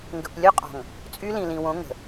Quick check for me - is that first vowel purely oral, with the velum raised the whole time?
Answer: yes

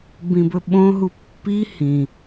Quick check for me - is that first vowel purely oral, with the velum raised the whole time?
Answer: no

